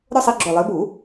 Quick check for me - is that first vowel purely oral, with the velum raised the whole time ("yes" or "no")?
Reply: yes